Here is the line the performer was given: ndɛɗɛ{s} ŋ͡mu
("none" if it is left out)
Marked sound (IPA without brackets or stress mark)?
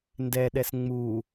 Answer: s